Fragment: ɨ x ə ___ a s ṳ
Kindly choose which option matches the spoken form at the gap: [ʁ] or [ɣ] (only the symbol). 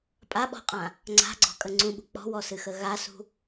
ɣ